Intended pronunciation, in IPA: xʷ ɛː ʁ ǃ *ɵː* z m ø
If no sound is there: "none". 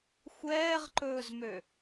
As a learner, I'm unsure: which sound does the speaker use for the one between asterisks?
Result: ɵː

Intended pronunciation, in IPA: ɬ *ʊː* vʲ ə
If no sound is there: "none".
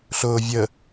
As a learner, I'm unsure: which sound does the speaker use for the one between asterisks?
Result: ʊː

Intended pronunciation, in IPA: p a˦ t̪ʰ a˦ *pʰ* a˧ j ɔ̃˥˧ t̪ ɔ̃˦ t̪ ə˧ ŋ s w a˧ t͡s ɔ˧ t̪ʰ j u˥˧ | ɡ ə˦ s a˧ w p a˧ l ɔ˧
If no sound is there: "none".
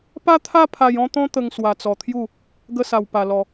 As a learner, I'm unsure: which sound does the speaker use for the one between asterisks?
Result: pʰ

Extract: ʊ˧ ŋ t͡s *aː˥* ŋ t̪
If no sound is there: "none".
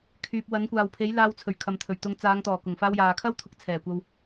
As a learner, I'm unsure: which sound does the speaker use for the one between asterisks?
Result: aː˨˧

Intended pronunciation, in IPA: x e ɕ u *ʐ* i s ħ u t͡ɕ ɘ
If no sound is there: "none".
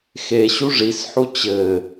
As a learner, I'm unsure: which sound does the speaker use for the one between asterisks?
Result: ʐ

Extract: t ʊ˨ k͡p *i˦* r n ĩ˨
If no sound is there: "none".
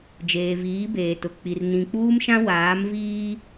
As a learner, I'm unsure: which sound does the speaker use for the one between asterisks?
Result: i˨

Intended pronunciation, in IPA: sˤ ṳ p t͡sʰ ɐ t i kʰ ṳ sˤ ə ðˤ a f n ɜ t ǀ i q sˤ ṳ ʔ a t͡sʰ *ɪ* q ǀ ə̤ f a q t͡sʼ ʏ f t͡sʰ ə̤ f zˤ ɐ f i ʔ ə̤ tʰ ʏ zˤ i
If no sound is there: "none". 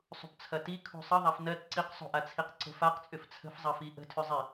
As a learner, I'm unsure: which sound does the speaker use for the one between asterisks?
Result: i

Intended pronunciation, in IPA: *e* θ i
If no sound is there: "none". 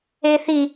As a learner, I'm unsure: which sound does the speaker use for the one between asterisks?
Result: e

